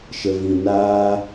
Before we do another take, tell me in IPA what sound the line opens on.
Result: ʃ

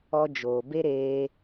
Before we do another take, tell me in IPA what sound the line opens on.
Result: ɔ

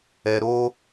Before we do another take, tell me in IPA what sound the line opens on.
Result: ɛ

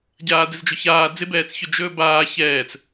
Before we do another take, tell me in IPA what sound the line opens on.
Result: ɟ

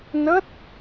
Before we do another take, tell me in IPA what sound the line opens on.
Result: n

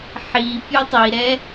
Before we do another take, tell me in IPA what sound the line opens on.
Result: ħ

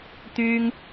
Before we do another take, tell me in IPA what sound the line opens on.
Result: t̪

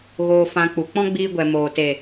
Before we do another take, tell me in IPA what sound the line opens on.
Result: ɣ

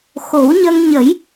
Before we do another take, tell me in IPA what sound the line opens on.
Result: x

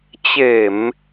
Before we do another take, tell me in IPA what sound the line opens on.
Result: t͡ɕ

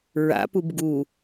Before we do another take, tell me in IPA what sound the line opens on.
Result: ɹ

